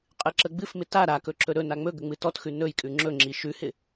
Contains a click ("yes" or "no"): yes